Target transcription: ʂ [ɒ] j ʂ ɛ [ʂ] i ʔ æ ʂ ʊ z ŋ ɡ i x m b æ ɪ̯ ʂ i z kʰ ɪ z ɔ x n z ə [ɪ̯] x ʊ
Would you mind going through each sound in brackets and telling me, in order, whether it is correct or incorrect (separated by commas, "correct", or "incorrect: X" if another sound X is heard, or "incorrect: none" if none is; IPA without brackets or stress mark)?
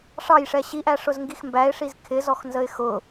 incorrect: ɑ, incorrect: ɕ, correct